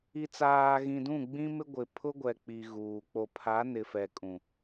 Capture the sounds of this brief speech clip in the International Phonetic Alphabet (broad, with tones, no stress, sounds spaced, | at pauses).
i˨ t͡s aː˨ ɣ ĩ˨ d ũ˦˨ ɡ͡b ĩ˦ m ɪ˦ ɡʷ ɪ˨ pʰ ʊ˦ ɡʷ ɛ˨ k͡p i˨ ɣ uː˨ k͡p o˨ pʰ a˨˦ n ɪ˨ f ɛ˨ kʼ ũ˨